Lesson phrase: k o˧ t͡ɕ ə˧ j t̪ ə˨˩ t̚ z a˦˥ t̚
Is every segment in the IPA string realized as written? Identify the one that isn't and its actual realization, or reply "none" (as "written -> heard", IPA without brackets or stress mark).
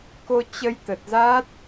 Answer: none